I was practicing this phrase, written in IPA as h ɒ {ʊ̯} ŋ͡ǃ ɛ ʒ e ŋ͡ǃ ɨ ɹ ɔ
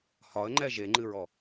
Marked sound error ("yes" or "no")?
yes